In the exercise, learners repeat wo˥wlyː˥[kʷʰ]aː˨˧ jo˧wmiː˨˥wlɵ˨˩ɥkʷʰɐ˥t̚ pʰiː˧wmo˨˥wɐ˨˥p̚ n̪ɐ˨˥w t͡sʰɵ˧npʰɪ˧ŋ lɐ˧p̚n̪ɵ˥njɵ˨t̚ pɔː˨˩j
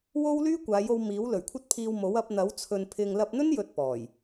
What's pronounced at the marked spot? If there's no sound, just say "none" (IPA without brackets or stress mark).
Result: kʷ